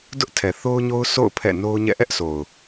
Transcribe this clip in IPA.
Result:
dʊ˦ʔtʰɛ˨θo˦ʊ̯ɲo˦ʊ̯ so̰˦˨ʊ̯ pʰɛ̰˦˨ no˦ʊ̯ɲɛ̰˦˨ ʔɛ˦ʔsʰo˨ʊ̯

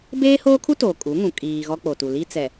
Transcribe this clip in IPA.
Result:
beː˦hoː˦kʰu˦ toː˨kʼu˨˦ŋũ˨ kʼiː˨ ɣɔ˦k͡po˨tu˨ li˦t͡sɛ˨

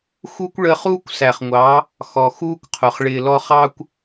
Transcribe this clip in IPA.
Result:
xu˦kʷ ɭəː˧χuː˦kʷsæ˨χŋʷɑ˨˦ | xɔ˨xuː˦kʷqʰʊ˨χ ɭɪː˨lɔ˧ χɑ˦kʷ

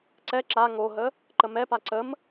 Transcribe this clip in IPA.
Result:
ǀɛ ǁa ŋoɦə | ǃəmɛpa ǀəm

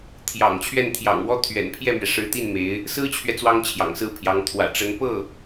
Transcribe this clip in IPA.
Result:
t̪ʰjɑ̰˨˩ŋt͡ɕʰɥɛ˥˩nt̪ʰjɑ̰˨˩ŋwɔ˥ t̪ʰɥɛ̰˨˩npʰjɛ˥˩mɥɛ˩ ʂɻ̩˧˥ t̪i˥˩nme˧˥ɪ̯ | sɹ̩˥t͡ɕʰɥɛ˨ t͡swɑ˥ŋt͡ɕʰjɑ̰˨˩ŋsɹ̩˥˩pʰjɑ˧˥ŋ t̪ʰwä̰˨˩ʈ͡ʂə˧˥n pɤ˥˩

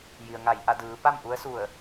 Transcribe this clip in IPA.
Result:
ji˩ə̯ŋa˧˩jʔa˥˨ dɯː˩˧ pa˥˨mʔu˧˥ə̯su˧˩ə̯

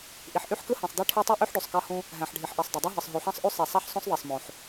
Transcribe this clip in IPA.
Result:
ʔi˩ħʔy˥ħkɯ˥ hĩ˩sˤdi˥ʈʰe˥ tˤu˥ʔy˥ħɖy˩sˤ kɑ˥hũ˥ | ɦæ̃˩ħɖʱi˩ħʔi˩sˤ dˤø˩dˤɯ˥ɦɯ˩sˤ ɦy˩ħɑ̃˥sˤʔy˥ sˤe˩sˤæ˥ħsˤõ˥sˤ ðˤi˩sˤmõ˩ħ

